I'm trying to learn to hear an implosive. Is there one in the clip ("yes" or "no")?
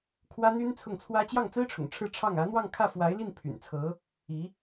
no